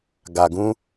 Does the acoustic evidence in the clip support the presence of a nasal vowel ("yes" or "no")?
yes